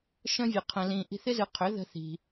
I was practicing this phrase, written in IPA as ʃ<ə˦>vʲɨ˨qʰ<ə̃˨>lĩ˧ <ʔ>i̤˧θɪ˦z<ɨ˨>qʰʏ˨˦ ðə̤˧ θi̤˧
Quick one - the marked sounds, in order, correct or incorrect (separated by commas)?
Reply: incorrect, incorrect, correct, incorrect